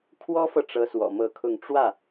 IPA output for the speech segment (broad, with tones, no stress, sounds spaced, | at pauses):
kʰ w ɔ˥ f ɤ˨ ʈ͡ʂ ɤ˥ s w ɔ̰˨˩ m ɤ˥˧ kʰ ʊ˥˧ ŋ ʈ͡ʂ w ä˥˩